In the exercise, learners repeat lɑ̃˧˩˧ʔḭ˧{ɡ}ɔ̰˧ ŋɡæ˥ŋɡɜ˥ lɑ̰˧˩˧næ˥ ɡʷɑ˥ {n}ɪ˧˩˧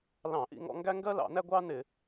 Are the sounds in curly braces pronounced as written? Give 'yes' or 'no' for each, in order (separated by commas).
no, yes